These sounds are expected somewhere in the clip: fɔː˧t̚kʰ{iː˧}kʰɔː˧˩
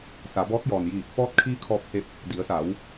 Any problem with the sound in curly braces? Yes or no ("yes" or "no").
no